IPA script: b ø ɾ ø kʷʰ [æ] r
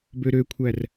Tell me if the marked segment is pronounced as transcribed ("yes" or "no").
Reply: yes